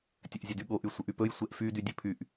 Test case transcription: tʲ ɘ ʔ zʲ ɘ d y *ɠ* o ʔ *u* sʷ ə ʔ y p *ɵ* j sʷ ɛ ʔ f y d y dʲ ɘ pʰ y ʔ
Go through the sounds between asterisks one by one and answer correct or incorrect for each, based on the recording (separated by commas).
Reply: correct, incorrect, correct